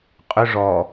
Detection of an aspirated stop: absent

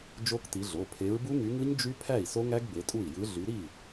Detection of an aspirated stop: present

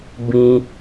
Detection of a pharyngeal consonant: absent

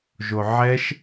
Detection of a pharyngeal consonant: present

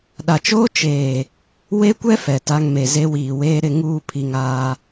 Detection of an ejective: absent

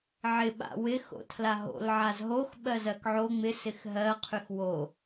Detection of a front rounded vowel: present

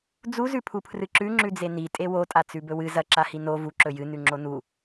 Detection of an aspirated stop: present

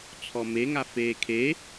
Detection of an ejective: absent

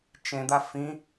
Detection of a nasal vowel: present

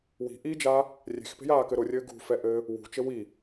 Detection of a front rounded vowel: absent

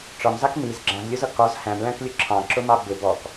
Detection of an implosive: absent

